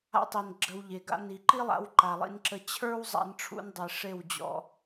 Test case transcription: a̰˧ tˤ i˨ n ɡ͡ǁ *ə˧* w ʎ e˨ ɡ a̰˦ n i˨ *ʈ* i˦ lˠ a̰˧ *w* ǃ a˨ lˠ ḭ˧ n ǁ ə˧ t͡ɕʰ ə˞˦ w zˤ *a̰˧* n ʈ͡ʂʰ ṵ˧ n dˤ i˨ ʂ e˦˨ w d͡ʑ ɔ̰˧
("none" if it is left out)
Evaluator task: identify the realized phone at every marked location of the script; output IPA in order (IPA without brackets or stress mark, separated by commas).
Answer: ə˧, ǃ, w, a̰˧